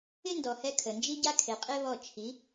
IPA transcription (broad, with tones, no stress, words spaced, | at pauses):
ɪ˦ndɔ˨hɛ˧ kʰə˨ nd͡ʒi˦ɟa˦kʰe˨qʼe˦ βɔ˦˨ t͡ʃʰi˨˦